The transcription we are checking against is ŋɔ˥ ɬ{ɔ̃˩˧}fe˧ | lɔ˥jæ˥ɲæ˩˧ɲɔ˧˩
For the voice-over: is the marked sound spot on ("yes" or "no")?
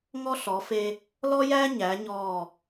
no